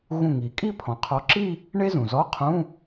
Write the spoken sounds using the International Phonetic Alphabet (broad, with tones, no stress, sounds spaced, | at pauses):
ɣ ũ˧˩ ŋ i˩ kʼ i˥˧ pʰ ɔ̃˩ qʰ ɔ˨˦ ǁ i˥˧ | ɳ e˥ z ũ˩ z ɔ˧˥˧ qʰ ũ˧˥˧